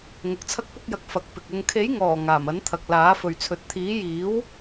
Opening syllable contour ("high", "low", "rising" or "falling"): rising